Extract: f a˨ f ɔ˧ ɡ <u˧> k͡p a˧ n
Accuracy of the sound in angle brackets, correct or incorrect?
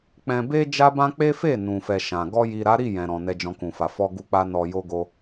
correct